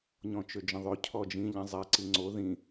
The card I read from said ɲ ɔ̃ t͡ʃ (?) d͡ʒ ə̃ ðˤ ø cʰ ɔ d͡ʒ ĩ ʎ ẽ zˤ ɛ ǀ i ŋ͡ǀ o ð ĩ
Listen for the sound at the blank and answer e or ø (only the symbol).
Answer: ø